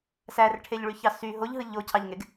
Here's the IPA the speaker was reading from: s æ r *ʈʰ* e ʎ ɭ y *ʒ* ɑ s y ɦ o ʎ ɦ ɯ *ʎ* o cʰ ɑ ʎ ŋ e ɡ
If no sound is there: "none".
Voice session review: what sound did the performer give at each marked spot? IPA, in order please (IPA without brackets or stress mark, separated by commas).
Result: ʈʰ, ç, ʎ